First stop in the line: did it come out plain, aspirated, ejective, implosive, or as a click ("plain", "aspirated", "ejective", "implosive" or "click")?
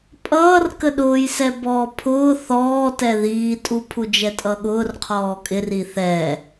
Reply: ejective